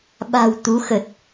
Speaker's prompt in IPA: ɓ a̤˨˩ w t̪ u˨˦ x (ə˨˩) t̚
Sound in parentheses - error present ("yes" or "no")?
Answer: no